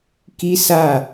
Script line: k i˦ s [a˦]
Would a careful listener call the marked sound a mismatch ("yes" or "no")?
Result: yes